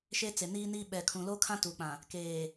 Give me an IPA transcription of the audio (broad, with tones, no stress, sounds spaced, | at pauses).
ʃ e˦ t͡s e˨ n iː˦ n iː˦ ɓ ɛ˨ kʰ ũ˨ l o˦ kʰ ã˦ t u˨ k͡p ã˨ | k eː˨